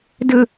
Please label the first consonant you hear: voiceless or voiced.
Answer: voiced